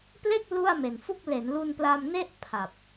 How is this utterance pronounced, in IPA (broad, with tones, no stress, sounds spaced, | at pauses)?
p l e˥˩ k̚ l u˥˩ a̯ m e˨˩ n f u˥˩ k̚ l e˩˦ n l u˧ n p l a˧ m n e˥˩ ʔ pʰ a˨˩ p̚